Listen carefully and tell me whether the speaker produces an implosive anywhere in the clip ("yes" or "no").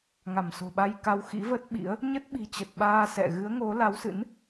yes